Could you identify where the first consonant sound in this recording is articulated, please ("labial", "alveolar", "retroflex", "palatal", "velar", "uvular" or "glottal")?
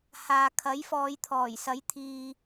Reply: glottal